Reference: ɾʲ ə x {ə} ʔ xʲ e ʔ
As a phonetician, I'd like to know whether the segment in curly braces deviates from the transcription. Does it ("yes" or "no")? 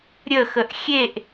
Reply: no